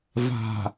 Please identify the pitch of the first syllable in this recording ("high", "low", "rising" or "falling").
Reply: low